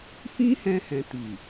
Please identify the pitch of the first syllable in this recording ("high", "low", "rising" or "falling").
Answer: high